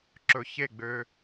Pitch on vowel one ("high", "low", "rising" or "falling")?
low